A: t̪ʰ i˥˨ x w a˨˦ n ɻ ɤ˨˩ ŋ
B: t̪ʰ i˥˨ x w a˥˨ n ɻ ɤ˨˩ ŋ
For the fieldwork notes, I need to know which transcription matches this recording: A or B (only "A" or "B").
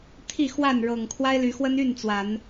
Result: B